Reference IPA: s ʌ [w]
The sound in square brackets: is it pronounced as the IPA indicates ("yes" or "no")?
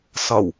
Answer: yes